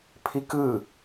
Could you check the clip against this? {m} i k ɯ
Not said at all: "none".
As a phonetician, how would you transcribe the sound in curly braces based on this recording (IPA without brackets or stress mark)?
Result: pʰ